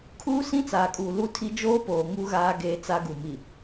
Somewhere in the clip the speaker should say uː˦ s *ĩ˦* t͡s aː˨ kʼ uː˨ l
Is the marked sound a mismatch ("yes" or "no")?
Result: no